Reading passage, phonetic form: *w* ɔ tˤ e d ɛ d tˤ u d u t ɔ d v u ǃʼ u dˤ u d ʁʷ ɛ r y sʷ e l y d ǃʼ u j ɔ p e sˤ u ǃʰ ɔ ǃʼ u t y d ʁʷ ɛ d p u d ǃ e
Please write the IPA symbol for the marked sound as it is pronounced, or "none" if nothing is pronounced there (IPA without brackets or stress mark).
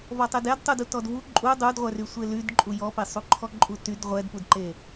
v